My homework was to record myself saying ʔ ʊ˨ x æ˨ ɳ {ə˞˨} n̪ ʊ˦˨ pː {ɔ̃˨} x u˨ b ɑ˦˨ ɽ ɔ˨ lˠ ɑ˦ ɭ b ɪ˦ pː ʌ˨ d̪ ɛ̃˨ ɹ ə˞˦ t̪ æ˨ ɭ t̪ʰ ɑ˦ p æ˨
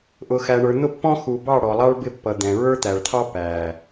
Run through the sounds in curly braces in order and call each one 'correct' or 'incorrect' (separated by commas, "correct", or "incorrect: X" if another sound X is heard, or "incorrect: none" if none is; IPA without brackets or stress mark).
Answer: correct, incorrect: ɔ̃˦